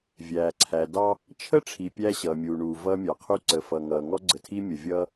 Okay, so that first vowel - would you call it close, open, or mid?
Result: open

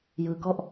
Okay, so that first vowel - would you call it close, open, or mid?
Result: close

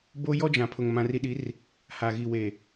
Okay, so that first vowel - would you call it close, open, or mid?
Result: mid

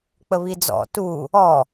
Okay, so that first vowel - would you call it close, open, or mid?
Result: mid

